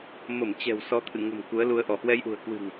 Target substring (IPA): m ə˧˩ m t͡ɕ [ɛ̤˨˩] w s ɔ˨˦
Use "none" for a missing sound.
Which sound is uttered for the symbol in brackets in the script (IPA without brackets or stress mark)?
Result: ɛ̤˨˩